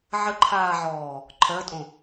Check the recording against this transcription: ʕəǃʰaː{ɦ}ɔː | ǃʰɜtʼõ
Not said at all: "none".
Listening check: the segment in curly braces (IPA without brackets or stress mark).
ʕ